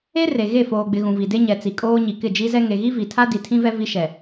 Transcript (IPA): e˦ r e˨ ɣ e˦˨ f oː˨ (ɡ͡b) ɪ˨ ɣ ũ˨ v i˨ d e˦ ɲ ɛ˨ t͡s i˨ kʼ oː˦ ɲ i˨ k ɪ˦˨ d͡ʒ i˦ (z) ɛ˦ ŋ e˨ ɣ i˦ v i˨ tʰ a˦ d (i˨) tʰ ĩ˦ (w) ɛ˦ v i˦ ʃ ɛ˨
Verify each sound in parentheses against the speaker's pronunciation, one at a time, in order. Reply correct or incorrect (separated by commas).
correct, correct, correct, incorrect